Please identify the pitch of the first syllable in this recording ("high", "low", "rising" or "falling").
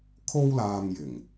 high